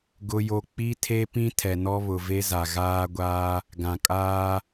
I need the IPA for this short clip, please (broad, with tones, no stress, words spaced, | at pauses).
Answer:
ɡʊ˦jo˦ k͡pi˦tʰe˦ pĩ˦ tʰɛ˨nɔ˦βʊ˨ ve˦za˨ ɣaː˦ɡʷaː˦ | ɡã˨kʼaː˦